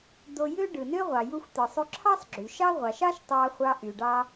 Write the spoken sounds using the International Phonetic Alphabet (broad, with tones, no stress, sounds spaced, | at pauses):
d̪ o˧ j ø˥ ɖ ɯ˩ n ø˥ ʁʷ ɑ˩ j u˧ xʷ t̪ ɯ˩ sˤ y˧ ǁʰ ɑ˥ sˤ ɡ͡ǁ y˩ ʃ ɑ˥ ʁʷ ɑ˩ ʃ ɑ˥ ʃ tˤ ɑ˧ χʷ ɑ˧ ʔ y˩ ɖ ɑ˧